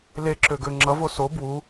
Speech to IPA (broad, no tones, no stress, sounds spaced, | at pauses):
l e ǁ ø ɡ ø ŋ͡ǁ ʌ v o s o b w u